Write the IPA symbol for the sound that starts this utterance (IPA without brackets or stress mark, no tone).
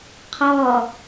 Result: qʰ